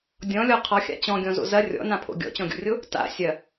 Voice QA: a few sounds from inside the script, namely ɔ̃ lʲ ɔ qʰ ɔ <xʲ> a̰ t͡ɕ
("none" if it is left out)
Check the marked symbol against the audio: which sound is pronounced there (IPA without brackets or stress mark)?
xʲ